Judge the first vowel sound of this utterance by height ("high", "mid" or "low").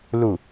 high